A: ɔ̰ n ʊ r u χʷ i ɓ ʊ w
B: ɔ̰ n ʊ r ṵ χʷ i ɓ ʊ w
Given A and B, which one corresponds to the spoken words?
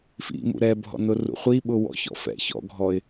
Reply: B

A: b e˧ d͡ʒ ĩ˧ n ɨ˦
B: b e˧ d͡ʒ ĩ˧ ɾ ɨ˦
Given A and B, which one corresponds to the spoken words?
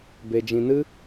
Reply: A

